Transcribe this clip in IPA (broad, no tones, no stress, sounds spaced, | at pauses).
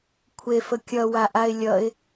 kʷʰ e f ə kʲ ʌ w a ʔ a ɪ̯ lʲ ʌ ɪ̯